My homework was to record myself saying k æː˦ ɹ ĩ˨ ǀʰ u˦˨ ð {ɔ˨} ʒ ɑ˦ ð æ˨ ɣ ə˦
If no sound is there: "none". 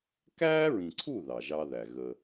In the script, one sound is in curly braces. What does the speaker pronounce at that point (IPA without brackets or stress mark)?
ɑ˨